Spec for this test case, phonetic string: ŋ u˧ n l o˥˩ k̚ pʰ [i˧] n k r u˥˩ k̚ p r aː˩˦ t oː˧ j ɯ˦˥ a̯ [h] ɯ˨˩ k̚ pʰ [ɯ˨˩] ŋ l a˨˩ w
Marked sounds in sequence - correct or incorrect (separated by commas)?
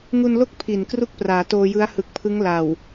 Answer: incorrect, correct, incorrect